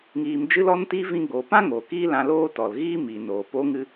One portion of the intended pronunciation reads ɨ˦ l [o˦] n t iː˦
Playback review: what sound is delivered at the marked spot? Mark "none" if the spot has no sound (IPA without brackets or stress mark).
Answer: ɔ˦